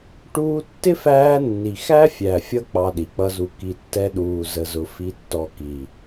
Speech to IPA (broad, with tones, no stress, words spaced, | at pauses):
ʈuː˧tːɪ˦fæː˧nːi˨ xæ˦fʲæ˨fʲʌ˧ k͡pɑ˧ɗi˨k͡pʌ˦zu˧ ki˨tːɛ˧ɗuː˨ zə˧zʊ˧ fi˧tːɔ˧ ki˨